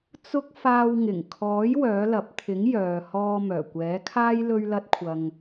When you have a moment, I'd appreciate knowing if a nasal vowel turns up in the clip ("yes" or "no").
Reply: no